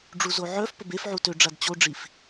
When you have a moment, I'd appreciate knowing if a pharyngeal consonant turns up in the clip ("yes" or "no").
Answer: yes